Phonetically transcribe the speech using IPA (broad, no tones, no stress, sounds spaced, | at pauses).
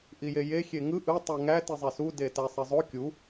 ʔ i j e j e xʲ e ŋ ɯ ʔ ɯ tˤ u ŋ æ t i zˤ e s u d e t æ sˤ e zˤ o kʲ u